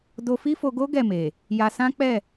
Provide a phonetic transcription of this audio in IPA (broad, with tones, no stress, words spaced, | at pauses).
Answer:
do˧fi˦fo˧ɡo˦ ɡɛ˦˨me˨ | ja˧sã˦k͡pɛ˦˨